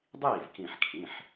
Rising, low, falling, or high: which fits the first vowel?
falling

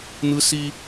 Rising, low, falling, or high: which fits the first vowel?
high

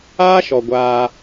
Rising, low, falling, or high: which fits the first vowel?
high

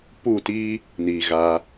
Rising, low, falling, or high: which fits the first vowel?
falling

